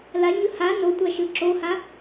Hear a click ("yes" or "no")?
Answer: yes